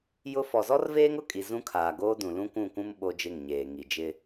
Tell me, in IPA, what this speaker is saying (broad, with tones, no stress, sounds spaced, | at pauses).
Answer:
j ʊ˦ f ɔ˨ z ɔ˦ r v eː˦ ŋ ʊ˦˨ kʼ i˨ z ũ˦ kʰ aː˨ ɡ oː˦ d ũ˨ l ũ˦ kʷ ũ˦˨ kʷ ũ˦ m ɓ o˦ d͡ʒ ɪ˦˨ ŋ ɲ eː˨ ŋ i˨ d͡ʒ ɪ˦